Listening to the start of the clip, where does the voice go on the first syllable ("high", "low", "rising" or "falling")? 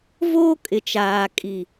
high